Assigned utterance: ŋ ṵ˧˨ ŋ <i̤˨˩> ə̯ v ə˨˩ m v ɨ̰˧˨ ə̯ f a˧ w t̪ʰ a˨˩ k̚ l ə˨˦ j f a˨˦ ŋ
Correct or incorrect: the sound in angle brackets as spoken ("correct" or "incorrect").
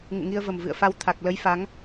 incorrect